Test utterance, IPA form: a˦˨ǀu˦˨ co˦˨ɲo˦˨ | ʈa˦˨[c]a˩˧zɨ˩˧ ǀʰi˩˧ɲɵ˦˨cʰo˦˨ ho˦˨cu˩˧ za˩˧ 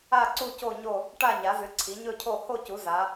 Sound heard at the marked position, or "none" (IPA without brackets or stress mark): ɲ